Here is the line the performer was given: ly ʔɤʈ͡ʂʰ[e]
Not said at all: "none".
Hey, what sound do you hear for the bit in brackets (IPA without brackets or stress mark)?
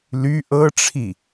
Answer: i